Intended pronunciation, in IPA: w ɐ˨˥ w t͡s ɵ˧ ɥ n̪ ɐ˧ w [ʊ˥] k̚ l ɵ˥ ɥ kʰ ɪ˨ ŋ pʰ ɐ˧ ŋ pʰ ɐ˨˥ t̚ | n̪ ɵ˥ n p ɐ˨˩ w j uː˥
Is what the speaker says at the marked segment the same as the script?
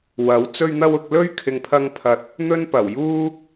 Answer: no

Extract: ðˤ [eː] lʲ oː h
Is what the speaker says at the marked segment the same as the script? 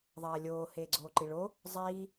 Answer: no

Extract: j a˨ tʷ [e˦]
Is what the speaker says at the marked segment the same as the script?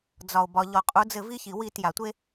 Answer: yes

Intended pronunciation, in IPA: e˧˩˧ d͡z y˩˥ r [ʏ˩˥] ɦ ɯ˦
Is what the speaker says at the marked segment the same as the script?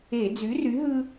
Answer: no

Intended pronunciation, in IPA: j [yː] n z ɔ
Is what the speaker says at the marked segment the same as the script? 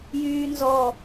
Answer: yes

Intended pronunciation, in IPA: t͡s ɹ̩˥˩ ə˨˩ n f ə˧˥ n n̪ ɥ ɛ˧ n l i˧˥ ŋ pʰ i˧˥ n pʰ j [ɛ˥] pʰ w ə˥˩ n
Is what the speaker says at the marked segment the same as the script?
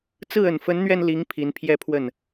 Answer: yes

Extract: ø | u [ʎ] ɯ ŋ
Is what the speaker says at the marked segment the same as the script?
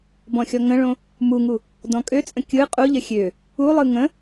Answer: no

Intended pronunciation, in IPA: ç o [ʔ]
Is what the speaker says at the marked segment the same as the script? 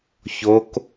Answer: no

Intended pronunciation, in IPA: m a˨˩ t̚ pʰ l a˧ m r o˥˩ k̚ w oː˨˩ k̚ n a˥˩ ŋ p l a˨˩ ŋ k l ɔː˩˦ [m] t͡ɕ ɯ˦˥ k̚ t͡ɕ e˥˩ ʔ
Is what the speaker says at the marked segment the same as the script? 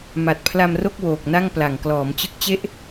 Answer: yes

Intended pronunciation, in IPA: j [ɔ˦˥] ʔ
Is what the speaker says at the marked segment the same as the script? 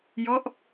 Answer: yes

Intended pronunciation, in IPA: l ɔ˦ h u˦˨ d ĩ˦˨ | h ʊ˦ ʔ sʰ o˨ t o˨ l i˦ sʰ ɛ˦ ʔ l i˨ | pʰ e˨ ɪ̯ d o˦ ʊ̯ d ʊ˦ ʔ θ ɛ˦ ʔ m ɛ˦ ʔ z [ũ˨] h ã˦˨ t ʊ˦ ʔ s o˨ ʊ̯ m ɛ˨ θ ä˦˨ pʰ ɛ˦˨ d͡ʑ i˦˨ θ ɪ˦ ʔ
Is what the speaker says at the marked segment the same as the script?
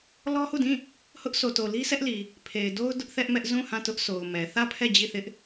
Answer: no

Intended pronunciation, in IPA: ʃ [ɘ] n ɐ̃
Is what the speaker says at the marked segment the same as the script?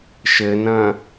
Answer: yes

